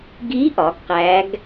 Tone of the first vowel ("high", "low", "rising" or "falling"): rising